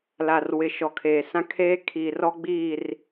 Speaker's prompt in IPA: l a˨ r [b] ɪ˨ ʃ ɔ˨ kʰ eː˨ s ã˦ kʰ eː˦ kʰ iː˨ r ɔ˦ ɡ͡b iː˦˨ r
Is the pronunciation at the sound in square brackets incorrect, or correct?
incorrect